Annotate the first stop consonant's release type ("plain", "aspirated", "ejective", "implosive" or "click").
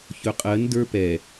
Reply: ejective